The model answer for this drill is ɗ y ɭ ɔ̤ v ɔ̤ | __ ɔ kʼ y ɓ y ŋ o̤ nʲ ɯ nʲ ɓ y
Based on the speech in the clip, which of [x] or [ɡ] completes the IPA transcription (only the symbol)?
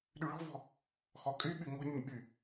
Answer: x